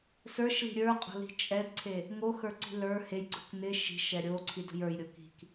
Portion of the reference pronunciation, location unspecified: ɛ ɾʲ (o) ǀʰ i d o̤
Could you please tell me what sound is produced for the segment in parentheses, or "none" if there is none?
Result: o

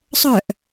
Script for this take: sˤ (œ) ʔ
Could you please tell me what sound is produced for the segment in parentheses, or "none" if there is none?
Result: œ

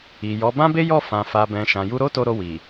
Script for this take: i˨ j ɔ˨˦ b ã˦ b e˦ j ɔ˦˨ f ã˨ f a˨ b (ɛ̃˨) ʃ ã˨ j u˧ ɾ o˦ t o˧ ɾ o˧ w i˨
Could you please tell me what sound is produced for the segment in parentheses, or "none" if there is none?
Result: ɛ̃˨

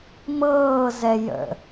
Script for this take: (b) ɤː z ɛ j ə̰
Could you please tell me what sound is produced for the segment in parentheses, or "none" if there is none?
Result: m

